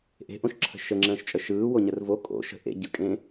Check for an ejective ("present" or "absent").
present